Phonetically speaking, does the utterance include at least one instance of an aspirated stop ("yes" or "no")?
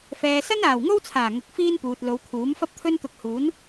yes